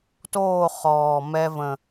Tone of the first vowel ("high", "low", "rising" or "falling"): falling